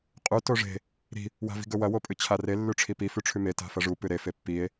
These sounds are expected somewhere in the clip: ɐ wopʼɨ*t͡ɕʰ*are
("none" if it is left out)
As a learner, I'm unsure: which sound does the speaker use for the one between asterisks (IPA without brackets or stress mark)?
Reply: t͡ɕʰ